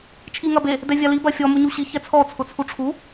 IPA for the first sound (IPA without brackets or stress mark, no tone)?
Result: t͡ʃʰ